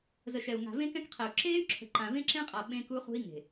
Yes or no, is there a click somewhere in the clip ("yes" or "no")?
yes